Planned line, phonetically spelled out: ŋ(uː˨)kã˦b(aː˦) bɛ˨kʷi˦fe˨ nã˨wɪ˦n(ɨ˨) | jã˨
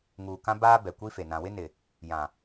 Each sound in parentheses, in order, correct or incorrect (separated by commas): correct, correct, incorrect